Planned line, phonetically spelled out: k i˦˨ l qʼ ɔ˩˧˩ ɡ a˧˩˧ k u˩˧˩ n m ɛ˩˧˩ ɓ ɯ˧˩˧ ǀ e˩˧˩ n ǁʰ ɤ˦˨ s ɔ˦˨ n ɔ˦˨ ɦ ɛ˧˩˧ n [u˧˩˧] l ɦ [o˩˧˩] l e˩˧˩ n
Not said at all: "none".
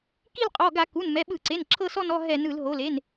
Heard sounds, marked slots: ɯ˧˩˧, o˩˧˩

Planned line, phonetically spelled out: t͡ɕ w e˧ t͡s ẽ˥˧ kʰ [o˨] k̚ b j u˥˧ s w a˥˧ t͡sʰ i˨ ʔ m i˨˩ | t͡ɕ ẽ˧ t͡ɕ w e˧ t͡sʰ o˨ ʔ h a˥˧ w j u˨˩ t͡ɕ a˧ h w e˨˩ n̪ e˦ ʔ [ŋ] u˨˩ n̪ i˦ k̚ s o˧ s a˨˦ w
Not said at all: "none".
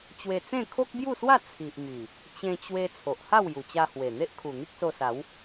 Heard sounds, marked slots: o˦, kʰ

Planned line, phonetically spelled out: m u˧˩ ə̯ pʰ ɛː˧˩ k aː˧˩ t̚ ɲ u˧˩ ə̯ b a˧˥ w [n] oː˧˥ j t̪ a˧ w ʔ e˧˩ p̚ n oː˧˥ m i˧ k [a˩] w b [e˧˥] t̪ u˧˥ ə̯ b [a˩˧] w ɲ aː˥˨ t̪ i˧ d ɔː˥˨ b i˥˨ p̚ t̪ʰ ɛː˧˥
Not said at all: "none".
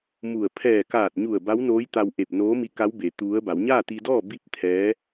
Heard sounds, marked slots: n, a˧˥, e˩˧, a˩˧

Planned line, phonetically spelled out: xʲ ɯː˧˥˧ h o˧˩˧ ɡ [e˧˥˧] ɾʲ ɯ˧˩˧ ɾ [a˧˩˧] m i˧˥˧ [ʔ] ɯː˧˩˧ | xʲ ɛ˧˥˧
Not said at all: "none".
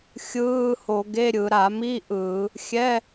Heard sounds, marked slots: e˧˥˧, a˧˩˧, ʔ

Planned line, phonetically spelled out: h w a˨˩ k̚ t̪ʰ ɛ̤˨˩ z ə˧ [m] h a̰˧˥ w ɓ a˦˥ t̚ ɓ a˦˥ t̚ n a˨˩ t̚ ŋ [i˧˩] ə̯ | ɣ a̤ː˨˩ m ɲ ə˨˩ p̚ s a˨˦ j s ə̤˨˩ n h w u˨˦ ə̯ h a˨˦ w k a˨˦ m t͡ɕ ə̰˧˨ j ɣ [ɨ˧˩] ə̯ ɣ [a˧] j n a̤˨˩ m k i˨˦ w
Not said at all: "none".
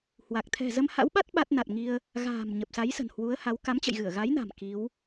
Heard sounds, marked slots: m, i˧, ɨ˧˩, a˨˦

